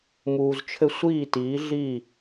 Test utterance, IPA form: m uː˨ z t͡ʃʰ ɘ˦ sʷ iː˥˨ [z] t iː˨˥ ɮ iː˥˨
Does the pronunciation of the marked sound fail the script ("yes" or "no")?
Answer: yes